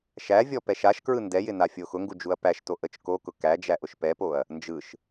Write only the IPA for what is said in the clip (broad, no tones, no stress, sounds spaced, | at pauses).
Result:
ʃ æ vʲ ɔ p ɛ ʃ a ʃ k ɹ ɯ n d ɛ j ɪ n a fʲ o x ʊ ŋ ɡ u d͡ʒ u ɐ̯ p æ ʃ t o ʔ ə t͡ʃ k o k ʊ k æ d͡ʒ æ ʔ ʊ ʃ p ɛ p o ɐ̯ | n d͡ʒ ɯ ʃ